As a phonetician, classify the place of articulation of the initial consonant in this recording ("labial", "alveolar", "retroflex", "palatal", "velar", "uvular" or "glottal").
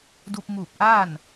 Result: alveolar